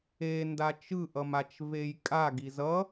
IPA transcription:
enda t͡ʃɯʔʌmat͡ʃ vejkʼa ɡizʌ

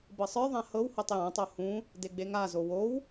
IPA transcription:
bɤsˤə˞ðˤã hɤw hotˤjãtˤo hũ | deɡ͡beŋazo wow

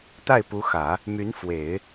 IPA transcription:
t̪a˥˩ɪ̯pu˧˥xä˨˩˦ | my˧˥n fwe˨˩˦ɪ̯

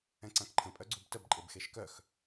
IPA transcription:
ɛ̃ǀãkǃʰə̃ pʼœɡ͡ǀubtəb ǃʼebxeʃkœx

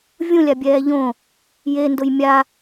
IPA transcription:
vʲũlʲabʲɛː ʎõ | jendʊj mʲa

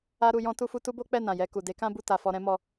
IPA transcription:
a˦ɾu˧jɔ̃˦ tu˦fu˦ tu˦bo˦k͡pɛ˦˨ nã˨jɛ˧ku˨ de˨˦kã˦bu˦˨ ta˧fɔ˧ɾɛ̃˦ mɔ˧

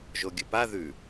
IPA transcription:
ʒoɡʲɵpa ðʉ

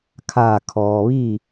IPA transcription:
kʰaː˧˩ kʰɔː˩ʋi˥˨

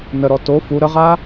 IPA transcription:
nəɾɔ to fu ɾəʁa

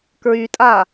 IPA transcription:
kɹytʼa

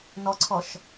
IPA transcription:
nɔǀʰɔʃ

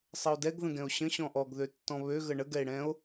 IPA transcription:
sˤəo̯dɛɡ ðə̃ɡɛ̃o̯ɕə̃ ɕɔ̃ʔɔɡ ðøtːɔ̃βø ɣəɳə ɡɛe̯ɽɛ̃o̯

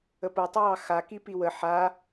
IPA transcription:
əpotˤəwɑ xa kipiwə ħa

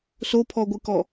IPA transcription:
sopʰɔɡʷɨkɔ

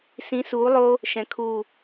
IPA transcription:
sĩ˨˦suː˨˦lˠo˦ | ʃɛ̃˨kʰu˦˨

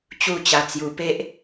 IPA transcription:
t͡ɕu˥˧t͡ɕa˧t͡sju˧ pe˦ʔ

